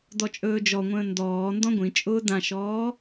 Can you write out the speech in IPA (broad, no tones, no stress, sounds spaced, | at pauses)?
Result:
d ɔ t͡ʃʼ ɵː d͡ʒ ɔ ŋʷ ə̃ː n d ɔː n d ɔ̃ ɡʷ ĩ t͡ʃʼ ʊː d ã ʃ ɔː